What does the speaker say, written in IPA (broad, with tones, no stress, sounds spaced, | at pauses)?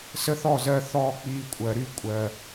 s ə˦ θ ɔ˦˨ z ɜ˧ θ ɔː˦ k͡p iː˧ kʷʼ ɜ˨ ɾ y˦ kʷʼ ɜ˨